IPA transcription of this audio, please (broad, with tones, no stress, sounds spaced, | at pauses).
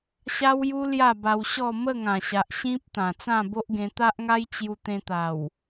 ɕ a˦ w j u˦ l j a˥˧ b a˧ w ɕ ɔ˥˧ m ə˥˧ ŋ ã˨˩ ɕ a˨ ʔ ɕ ĩ˦ p̚ t̪ ã˨˩ t͡s ã˥˧ b o˦ ʔ ɡ ẽ˧ t̪ a˦ ʔ ŋ a˦ j t͡ɕ j u˧ t̪ ẽ˧ t̪ a˨˩ w